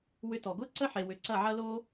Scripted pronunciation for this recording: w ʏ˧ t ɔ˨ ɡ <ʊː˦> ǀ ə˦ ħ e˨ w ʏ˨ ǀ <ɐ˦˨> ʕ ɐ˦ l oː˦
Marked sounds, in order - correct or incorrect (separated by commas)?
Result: correct, correct